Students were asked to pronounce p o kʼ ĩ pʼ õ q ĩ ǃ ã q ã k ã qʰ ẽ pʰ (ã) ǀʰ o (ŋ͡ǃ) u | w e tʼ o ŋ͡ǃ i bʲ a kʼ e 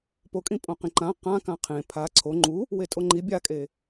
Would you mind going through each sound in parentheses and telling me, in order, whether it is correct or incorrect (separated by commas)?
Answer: incorrect, correct